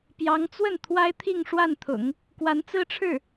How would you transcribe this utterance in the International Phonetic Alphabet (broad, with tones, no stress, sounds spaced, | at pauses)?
p j ɑ˧˥ ŋ t͡s w ə˥˩ n t̪ʰ w a˥ ɪ̯ t̪ʰ i˥˧ ŋ ʂ w a˥˩ n t̪ʰ ʊ̰˨˩˦ ŋ | k w a˧˥ n t͡s ɹ̩˥ ʈ͡ʂʰ ɻ̩˥˩